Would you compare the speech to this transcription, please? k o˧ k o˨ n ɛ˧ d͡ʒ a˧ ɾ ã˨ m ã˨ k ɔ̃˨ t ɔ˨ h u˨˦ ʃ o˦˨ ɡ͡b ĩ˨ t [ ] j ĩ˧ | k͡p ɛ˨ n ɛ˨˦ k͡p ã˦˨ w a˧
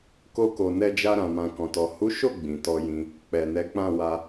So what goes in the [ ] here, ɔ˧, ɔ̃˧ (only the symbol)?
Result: ɔ˧